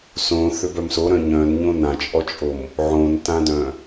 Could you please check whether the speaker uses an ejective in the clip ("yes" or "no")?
yes